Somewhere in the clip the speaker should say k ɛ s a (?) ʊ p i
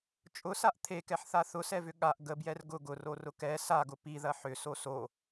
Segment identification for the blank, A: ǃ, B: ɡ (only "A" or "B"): B